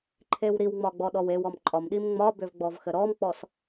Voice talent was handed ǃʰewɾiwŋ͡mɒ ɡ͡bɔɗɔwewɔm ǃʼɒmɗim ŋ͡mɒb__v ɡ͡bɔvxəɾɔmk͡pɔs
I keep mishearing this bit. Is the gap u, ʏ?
ʏ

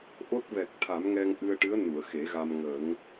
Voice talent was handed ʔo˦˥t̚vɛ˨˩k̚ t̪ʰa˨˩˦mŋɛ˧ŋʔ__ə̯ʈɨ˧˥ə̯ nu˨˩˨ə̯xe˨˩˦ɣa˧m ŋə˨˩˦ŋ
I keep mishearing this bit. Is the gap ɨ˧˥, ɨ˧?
ɨ˧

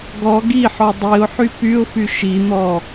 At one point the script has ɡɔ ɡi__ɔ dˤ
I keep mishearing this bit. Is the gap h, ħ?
ħ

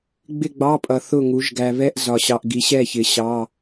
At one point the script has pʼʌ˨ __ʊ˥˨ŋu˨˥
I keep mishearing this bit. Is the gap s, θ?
θ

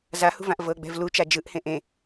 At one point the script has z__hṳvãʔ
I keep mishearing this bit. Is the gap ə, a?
a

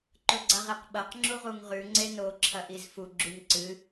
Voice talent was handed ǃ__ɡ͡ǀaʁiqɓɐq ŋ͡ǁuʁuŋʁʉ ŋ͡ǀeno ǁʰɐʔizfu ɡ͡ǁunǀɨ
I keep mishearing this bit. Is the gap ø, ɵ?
ɵ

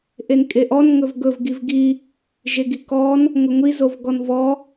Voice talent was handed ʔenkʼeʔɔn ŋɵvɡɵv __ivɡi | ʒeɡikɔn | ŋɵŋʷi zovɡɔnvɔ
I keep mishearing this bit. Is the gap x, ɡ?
ɡ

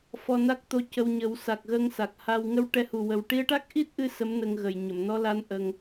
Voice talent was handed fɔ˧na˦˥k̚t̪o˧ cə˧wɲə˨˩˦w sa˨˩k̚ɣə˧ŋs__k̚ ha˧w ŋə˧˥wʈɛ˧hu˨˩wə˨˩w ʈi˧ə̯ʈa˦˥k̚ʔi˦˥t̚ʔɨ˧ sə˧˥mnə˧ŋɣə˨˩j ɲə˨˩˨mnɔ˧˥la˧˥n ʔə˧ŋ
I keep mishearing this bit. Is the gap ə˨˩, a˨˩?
a˨˩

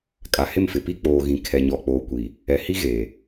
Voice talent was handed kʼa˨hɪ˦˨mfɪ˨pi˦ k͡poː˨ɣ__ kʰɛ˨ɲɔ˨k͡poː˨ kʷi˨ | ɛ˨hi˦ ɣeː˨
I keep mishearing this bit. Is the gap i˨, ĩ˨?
ĩ˨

